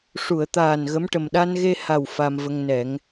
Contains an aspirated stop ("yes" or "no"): no